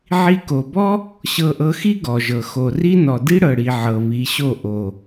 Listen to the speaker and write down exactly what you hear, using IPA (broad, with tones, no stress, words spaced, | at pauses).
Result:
ʕi˧ko˨bɔ˦ | ɕɤ˧ʔɤ˧xi˦ ɡɔ˨ʒɤ˨ xo˨ ri˦nɔ˨ di˦ɽɤ˨ɽi˨ ʕɤ˨βi˨˦ɕo˦˨ ʔo˨